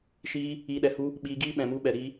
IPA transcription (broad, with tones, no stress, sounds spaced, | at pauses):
ʃ iː˧ | iː˨ ɗ ɛ˨ h u˧ | ɓ iː˧ ɡ iː˦ ɓ ɛ̃˨ m u˧ ɓ ɛ˨ ɾ iː˧